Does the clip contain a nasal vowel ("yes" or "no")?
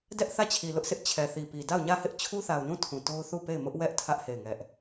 yes